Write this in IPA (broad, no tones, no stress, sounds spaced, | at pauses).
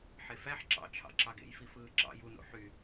ħ e f æ ħ ǁ ɑ̰ t͡ʃʰ ɑ̰ ǁ ɑ ɡ ḛ j f i f ɯː ǁ ɑ̰ j u n o̰ ħ y